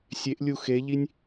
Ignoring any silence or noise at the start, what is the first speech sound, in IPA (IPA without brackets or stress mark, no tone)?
sʲ